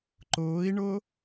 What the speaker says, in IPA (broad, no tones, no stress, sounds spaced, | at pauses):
ǃ ʊː i̯ ɳ ʊː